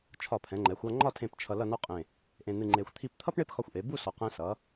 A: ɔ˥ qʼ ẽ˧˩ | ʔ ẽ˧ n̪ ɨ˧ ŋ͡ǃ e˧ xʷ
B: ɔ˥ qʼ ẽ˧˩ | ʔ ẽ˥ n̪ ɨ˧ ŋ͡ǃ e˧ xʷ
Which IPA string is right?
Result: A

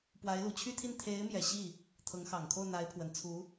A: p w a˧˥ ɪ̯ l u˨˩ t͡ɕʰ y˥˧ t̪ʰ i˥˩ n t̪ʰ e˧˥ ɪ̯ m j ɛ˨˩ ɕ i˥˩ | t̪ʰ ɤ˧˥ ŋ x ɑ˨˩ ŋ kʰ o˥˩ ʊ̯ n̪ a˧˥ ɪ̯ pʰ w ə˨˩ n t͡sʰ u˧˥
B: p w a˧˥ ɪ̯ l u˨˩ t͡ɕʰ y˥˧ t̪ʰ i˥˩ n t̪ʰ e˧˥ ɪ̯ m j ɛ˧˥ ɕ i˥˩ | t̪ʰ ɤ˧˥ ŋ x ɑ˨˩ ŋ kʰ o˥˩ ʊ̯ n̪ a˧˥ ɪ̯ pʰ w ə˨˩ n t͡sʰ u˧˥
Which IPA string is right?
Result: A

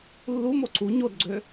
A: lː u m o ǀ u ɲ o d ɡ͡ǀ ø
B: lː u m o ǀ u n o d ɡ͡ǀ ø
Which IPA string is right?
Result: A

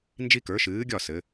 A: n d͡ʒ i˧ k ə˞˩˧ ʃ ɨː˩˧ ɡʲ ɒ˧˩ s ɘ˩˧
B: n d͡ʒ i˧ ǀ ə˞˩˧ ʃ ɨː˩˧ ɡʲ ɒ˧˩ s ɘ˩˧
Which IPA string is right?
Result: A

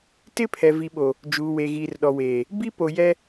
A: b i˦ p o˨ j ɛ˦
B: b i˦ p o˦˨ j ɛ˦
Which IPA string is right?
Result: A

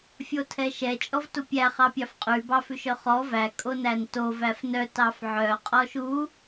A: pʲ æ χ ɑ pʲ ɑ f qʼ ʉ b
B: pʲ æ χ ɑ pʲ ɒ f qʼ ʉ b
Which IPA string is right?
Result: A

